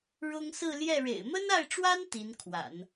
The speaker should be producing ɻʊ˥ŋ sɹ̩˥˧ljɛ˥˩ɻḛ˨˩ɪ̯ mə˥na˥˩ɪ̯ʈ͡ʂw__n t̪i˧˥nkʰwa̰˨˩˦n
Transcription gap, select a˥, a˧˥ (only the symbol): a˥